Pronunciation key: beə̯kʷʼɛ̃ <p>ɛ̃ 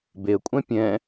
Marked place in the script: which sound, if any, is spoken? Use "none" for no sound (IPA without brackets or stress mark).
pʲ